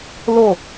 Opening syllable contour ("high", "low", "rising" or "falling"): falling